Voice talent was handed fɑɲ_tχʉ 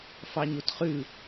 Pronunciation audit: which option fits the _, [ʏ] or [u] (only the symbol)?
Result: u